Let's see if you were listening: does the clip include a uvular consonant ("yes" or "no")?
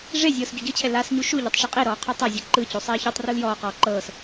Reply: yes